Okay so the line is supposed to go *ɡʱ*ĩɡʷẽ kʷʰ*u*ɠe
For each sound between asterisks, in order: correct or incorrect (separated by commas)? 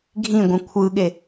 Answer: correct, incorrect